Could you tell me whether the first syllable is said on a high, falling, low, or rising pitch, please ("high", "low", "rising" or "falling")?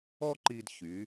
high